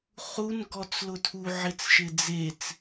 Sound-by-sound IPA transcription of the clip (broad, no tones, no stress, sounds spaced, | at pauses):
χ u n ɡ ɔ t͡s l ʊ tʰ u ʕ ɪ t͡s ʃ ɪ d͡z e t͡s